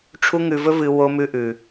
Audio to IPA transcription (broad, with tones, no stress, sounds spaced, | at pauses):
ʈ͡ʂʰ u˦ ŋ ʉ˧ v ɵ˦ v ɨ˧ w o˧ m ʉ˧ ʔ ʉ˨